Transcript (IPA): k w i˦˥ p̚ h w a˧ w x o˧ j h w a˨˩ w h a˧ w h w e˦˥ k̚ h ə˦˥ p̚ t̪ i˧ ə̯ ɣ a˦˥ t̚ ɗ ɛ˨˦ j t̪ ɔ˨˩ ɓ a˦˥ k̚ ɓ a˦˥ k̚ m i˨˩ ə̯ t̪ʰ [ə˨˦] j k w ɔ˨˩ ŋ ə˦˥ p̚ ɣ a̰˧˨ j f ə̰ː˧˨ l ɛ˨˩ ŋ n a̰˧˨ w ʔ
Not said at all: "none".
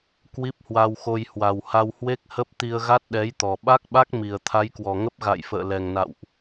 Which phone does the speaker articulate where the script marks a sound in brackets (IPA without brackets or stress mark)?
a˨˦